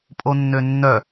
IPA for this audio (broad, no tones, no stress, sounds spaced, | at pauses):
pʼ o nː ø nː œ